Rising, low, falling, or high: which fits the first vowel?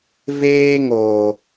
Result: high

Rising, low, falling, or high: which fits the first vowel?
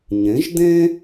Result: rising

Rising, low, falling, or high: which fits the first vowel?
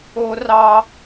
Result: high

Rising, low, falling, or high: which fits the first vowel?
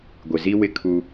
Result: low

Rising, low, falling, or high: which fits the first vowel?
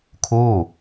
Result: falling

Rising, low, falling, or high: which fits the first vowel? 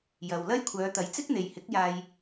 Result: low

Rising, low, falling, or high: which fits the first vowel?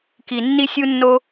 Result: low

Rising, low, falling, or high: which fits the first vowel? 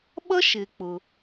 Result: high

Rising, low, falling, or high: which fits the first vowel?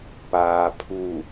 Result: low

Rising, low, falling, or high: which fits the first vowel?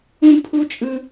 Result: high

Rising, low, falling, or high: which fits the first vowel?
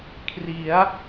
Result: rising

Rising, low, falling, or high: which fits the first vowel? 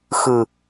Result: low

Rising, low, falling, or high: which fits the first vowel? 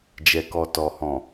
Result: low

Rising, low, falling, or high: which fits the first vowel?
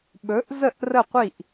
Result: rising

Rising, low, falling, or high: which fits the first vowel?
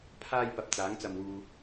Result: high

